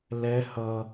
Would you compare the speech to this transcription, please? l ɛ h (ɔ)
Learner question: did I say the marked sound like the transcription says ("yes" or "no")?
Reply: no